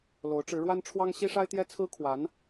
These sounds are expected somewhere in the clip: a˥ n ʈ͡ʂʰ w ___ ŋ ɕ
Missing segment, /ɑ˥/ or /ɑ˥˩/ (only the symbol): ɑ˥